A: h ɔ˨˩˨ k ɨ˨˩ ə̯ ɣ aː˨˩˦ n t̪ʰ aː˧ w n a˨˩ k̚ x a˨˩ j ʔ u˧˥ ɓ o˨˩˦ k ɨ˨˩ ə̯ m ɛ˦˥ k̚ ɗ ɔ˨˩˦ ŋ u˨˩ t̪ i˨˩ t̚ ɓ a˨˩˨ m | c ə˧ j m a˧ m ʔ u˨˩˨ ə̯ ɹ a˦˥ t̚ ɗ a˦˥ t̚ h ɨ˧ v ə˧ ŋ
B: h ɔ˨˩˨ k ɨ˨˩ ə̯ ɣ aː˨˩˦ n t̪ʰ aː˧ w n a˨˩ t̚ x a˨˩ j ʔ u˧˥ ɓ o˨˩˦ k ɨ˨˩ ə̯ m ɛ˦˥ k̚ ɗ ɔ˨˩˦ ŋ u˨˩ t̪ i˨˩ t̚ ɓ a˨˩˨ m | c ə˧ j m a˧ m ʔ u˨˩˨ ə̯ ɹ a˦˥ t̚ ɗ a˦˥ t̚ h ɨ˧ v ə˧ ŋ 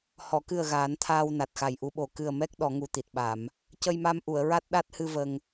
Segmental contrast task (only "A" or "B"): B